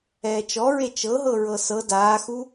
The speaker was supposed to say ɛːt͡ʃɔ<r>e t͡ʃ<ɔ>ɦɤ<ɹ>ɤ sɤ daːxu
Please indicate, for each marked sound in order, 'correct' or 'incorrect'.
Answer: incorrect: ɹ, incorrect: ɤ, correct

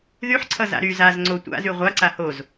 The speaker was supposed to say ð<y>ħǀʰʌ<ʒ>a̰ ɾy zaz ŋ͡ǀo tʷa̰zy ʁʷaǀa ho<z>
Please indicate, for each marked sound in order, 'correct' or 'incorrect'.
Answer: correct, incorrect: z, correct

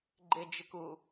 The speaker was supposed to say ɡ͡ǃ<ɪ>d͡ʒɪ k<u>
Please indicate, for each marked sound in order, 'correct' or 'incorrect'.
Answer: correct, correct

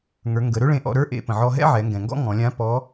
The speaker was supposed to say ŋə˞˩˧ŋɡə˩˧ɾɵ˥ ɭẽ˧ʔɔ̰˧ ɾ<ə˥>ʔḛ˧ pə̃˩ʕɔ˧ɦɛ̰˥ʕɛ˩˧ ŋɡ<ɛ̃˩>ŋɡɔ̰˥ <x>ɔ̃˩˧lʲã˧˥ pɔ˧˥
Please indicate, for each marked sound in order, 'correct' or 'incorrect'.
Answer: incorrect: ə˞˥, correct, incorrect: ŋ

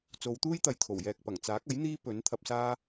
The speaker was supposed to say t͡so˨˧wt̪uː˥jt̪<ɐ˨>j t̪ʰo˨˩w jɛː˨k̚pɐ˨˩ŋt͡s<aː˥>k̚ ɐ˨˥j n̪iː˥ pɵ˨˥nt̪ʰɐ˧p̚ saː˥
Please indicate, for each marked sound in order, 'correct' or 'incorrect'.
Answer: correct, incorrect: aː˨˥

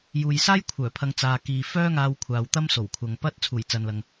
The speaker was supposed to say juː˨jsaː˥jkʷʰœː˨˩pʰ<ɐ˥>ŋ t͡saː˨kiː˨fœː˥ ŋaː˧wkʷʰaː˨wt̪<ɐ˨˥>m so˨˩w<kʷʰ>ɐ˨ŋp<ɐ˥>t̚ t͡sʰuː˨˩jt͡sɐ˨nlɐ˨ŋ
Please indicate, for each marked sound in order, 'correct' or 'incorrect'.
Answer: incorrect: ɐ˨, incorrect: ɐ˥, correct, correct

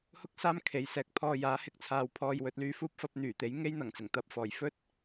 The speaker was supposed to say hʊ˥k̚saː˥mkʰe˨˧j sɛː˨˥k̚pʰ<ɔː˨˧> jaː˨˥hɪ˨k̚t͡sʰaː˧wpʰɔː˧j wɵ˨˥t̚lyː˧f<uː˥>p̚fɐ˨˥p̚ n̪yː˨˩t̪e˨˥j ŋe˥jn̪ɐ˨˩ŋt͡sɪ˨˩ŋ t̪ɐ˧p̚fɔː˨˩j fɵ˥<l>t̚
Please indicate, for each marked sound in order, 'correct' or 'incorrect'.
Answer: incorrect: ɔː˧, correct, incorrect: none

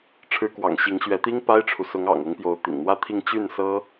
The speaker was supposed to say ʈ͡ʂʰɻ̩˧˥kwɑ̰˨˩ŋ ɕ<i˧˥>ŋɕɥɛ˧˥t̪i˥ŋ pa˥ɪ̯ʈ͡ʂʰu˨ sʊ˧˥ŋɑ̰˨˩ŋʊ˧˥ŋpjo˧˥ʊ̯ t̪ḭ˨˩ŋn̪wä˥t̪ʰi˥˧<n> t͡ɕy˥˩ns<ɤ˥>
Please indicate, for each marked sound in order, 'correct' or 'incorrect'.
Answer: correct, incorrect: ŋ, correct

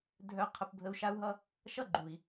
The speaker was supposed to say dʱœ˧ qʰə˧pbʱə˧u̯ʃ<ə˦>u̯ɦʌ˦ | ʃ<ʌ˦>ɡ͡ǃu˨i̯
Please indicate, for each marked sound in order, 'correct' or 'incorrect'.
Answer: incorrect: a˦, correct

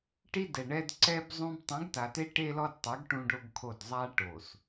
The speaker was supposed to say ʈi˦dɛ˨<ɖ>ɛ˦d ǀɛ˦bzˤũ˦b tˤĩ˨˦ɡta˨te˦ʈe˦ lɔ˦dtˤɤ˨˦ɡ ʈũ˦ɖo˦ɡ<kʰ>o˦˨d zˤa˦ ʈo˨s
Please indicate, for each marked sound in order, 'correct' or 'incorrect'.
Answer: incorrect: ɳ, correct

